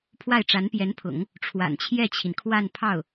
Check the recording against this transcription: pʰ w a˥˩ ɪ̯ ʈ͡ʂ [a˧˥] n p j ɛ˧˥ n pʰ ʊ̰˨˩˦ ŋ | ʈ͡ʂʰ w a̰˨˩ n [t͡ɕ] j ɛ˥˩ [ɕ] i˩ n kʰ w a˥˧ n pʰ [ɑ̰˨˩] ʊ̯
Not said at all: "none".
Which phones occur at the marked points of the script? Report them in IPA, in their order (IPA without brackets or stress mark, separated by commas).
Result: a˧˥, t͡ɕʰ, t͡ɕʰ, ɑ˥˩